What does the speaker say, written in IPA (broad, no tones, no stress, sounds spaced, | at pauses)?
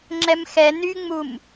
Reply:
ŋ͡ǁ ɛ m x ɛ n y ŋ͡m u m